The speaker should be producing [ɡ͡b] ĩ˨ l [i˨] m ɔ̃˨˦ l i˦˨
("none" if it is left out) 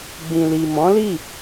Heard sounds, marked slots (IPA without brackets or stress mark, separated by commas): ɡ͡b, i˨